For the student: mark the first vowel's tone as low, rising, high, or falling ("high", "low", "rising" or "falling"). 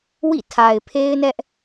falling